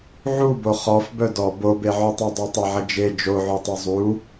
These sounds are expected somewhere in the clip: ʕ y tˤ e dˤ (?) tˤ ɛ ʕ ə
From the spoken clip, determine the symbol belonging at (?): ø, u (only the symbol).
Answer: ø